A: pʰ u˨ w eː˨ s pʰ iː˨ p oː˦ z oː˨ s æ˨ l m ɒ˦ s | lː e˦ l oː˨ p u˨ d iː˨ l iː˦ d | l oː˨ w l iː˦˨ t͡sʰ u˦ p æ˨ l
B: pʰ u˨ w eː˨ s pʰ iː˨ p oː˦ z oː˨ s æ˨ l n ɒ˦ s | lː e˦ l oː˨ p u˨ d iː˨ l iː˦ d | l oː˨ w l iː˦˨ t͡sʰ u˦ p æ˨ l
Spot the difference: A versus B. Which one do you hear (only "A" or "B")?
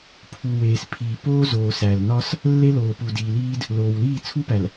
B